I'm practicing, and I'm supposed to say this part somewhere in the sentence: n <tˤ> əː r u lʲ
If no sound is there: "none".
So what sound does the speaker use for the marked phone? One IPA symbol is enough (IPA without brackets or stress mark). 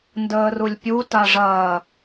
d